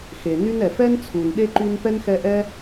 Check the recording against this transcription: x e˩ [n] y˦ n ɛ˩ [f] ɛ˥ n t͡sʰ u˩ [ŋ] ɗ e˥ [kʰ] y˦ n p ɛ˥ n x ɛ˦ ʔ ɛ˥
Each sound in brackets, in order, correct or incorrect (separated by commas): correct, correct, incorrect, incorrect